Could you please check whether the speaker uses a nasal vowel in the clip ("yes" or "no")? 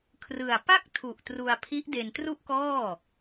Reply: no